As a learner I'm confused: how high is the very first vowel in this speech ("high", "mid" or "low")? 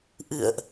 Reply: high